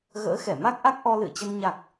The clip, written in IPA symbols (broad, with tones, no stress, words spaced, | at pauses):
ɣə̰ː˧˥xɛ˧˩ma˦˥k̚ʔa˦˥k̚ ʔɔ˧lɨ̰˧˨ə̯t͡ɕə˧n ɲa˨˩k̚